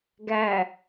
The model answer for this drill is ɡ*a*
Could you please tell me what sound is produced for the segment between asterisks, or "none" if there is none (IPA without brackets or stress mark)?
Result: æ